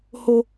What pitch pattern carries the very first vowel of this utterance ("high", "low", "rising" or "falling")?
high